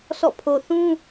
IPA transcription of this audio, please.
sʰ ɔ̰˦˨ pʰ o˨ θ ũ˦

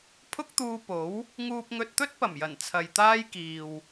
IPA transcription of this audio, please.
pʰ ʊ˥ k̚ t̪ uː˧ p o˨˥ w | ŋ uː˧ p̚ ŋ ɵ˧ t̚ t̪ ɵ˥ t̚ p ɐ˨˩ m j ɐ˨˩ n t͡sʰ ɐ˨ j t̪ aː˥ j k iː˨ w

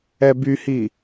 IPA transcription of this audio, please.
ɛ b y h i

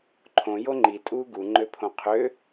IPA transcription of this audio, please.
ǃʰ õ j o ŋ͡ǃ i tʼ uː ɡ u ŋ͡ǃ ø pʰ õ qʰ ø

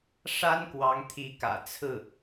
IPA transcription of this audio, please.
ʂ a˥ n k w ɑ˧˥ ŋ t̪ʰ i˧˥ k ä̰˨˩ t͡sʰ ɹ̩˥˩

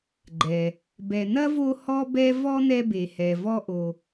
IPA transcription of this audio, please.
ɡ͡ǃ ɛ˩ | b ɛ˨ n̪ ɐ˥ v o˦ h ɔ˥ b ɛ˥ v ɔ˥ n̪ ɛ˦ b e˨ h ɛ˨ v ɔ˦ ʔ o˨

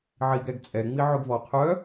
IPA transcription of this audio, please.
ʕ i ɡ ɾ ɛ ɡ t͡sʼ ɛ ŋ͡m i ʕ ʏ ɡ v ɔ qʰ œ

